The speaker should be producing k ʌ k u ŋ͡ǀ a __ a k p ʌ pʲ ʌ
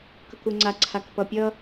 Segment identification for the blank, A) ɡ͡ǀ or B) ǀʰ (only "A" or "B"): B